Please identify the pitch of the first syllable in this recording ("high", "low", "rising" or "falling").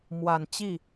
low